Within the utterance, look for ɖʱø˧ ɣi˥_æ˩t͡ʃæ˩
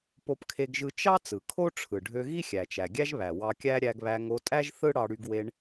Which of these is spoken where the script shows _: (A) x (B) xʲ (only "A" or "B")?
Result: B